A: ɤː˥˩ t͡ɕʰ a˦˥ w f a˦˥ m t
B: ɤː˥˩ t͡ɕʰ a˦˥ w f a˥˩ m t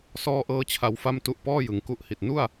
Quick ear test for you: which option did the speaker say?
B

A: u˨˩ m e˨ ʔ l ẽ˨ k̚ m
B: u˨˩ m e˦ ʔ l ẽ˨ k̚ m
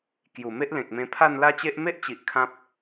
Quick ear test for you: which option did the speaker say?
B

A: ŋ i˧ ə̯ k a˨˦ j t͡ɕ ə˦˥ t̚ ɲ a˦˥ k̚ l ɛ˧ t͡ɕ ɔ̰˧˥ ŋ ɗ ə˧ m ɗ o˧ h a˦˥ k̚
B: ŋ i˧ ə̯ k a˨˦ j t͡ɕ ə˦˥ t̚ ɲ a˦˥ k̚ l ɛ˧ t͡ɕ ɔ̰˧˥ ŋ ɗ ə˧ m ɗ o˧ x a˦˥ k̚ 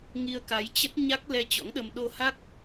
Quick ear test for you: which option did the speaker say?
A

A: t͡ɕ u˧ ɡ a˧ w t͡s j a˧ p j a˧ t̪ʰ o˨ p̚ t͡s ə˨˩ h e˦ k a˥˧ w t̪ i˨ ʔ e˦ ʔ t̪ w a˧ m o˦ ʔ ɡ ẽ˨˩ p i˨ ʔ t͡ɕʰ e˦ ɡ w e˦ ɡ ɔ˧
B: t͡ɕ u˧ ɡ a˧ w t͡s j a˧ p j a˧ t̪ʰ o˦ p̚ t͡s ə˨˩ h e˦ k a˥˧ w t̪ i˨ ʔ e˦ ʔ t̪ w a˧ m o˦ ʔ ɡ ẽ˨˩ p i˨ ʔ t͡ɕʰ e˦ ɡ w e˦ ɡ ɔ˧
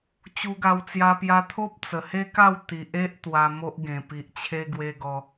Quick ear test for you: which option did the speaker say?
B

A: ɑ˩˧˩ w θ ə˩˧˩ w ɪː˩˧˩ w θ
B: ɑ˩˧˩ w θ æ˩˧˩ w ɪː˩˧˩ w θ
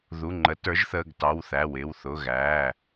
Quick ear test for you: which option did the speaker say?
B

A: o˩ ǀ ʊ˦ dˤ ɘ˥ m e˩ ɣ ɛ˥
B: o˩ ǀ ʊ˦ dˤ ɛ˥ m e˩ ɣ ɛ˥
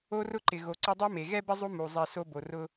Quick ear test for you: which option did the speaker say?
B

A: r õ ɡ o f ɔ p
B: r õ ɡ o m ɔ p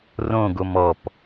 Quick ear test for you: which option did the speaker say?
B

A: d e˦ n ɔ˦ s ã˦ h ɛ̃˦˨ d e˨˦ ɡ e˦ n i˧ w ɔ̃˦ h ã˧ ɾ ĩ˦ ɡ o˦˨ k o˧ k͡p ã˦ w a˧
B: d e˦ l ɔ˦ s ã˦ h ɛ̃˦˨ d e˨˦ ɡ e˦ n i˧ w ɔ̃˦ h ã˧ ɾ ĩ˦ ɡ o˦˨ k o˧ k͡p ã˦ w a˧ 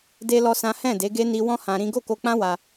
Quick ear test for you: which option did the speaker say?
B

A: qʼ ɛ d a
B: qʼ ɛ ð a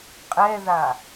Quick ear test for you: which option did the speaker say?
B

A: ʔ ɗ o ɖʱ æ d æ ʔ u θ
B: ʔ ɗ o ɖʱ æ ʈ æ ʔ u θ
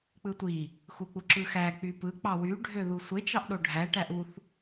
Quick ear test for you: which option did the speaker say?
B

